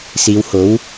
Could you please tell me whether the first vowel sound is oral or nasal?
oral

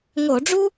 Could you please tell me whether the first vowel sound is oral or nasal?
oral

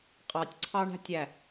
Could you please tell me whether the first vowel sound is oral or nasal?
oral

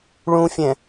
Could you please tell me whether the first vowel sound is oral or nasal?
nasal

